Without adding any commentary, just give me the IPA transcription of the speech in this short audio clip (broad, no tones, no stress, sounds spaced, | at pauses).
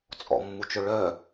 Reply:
t͡sʼ ɔ̰ mː u t͡ʃ ɵ ɭ œ